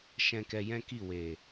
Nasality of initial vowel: nasal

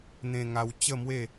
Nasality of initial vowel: nasal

